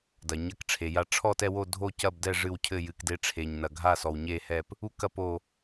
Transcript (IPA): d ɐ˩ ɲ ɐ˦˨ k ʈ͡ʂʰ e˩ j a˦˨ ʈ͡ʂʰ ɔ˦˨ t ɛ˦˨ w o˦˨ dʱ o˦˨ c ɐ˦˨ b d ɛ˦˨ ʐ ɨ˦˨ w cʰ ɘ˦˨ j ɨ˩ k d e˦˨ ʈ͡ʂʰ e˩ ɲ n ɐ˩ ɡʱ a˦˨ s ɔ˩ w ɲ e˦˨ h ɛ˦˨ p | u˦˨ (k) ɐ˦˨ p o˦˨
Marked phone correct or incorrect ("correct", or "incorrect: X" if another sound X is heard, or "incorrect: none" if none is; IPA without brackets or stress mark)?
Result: correct